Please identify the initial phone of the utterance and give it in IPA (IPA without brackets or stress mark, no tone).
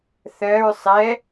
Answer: θ